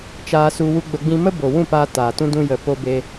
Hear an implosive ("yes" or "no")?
no